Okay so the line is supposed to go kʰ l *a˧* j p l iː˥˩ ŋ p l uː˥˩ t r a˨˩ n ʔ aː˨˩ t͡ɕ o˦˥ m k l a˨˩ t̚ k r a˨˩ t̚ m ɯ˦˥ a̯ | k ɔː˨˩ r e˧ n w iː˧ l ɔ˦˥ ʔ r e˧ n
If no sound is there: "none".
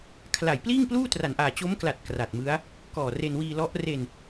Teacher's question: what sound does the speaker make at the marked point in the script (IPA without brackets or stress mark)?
a˨˩